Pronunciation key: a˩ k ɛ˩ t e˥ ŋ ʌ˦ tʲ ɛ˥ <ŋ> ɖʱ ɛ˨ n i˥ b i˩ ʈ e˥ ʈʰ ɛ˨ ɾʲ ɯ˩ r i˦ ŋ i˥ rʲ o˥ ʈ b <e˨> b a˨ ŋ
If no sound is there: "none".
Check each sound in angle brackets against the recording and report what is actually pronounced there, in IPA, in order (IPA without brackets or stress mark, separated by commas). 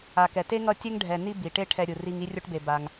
ŋ, e˨